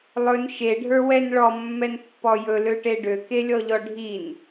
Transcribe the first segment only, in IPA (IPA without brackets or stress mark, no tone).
lˠ